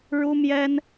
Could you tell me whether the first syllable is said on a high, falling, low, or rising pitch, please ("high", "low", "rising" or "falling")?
high